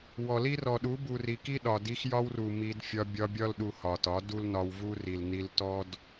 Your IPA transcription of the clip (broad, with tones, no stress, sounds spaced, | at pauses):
w ɔ˨ l i˦ r ɔ˨ ɗ u˨˦ b u˨ r i˨ k i˦ ɗ ɒ˨ d i˧ x j ɒ˦ w r u˨ m i˧ d fʲ ɒ˧ bʲ ɒ˧ bʲ ɒ˦ l ɗ u˧ h ɒ˨ t ɒ˨˦ d u˦ l n ɒ˧ w v u˦ r i˨ l n i˧ l t ɔ˦ d